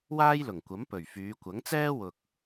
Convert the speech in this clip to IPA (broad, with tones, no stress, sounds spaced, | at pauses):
w aː˥ j l ʊ˨˩ ŋ kʷ ɐ˨˥ m p ɵ˨˩ ɥ f yː˨˧ kʷ ɐ˨˥ ŋ t͡s ɛː˥ w ʊ˨ k̚